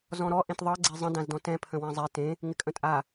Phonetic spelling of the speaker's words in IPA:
z ɔ̃ ɾ ɔ ʔ ẽ t ðˤ ɤ ɡ͡ǀ e zˤ ə̃ d ã z d ɔ̃ t ɛ̃ pʰ ə̃ w ɛ̃ zˤ ɛ t ẽ | ŋ ɪ kʼ ə̃ tʼ a

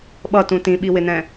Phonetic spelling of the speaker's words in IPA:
ɓ ʌ t ũ t ĩ ɓ i w ɪ n ɛ̃

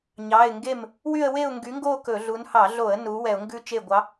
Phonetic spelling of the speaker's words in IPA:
ɲ ɑ˩˧˩ ɪ̯ ŋ ɡ e˥˩ m | w y˥˧ ə̯ w e˥˧ ʊ̯ ŋ ɡ y˨˥ ŋ ɡ o˥˧ k ɵ˧˩˧ ɮ u˨˥ n h ɑ˧˩˧ ɮ o˧˩˧ ə̯ n u˨˥ w ɛ˧˩˧ ʊ̯ ŋ ɡ ʉ˥˧ t͡ʃ e˥˩ ɡʷ ɑ˨˥

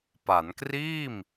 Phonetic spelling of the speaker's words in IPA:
p a˩˦ n k r iː˥˩ m

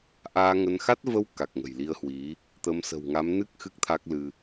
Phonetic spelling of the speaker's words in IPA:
ʔ aː˧ ŋ ə˧ n x a˦˥ t̚ v ə˧ w k a˨˩ k̚ ŋ ə̤˨˩ j l i˧ ə̯ h w i˨˦ | t̪ ə˨˦ m s ə̤˨˩ w ŋ a˨˦ m n ɨ˦˥ k̚ x ɨ˦˥ k̚ t̪ʰ a˦˥ k̚ l ɨ˧

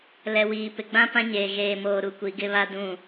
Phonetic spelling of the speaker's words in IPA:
l ɛ˨ w iː˨ p ɪ˨ ɡ͡b ã˦ p ã˦ ɲ eː˨ ɣ eː˨ m oː˨ ɾ u˨ kʷ i˨˦ ɡ ɪ˦ β a˦ d ũ˦˨

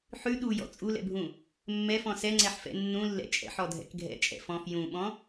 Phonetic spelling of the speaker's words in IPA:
ħ ʉ ɗ u j ɔ̰ t͡sʼ u l ɛ̰ bʱ ũ | mː ɛ f ɔ̃ s ɛ ŋ͡ǀ ɛ ħ f ɛ̰ nː ũ lː ɛ̰ t͡ʃʼ ɛ̰ ħ ɔ dʱ ɛ̰ k ɡʱ ɛ̰ t͡ʃʼ ɛ̰ f ɔ̃ f j ũ ɓ ɔ̃

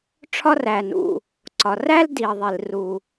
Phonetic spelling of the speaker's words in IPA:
ʈ͡ʂʰ ɒ˥ r æ˩ n ṵ˩ | ǀ ɒ˩ r æ˥ l d i˩ ə̯ ðˤ i˩ l r u˩

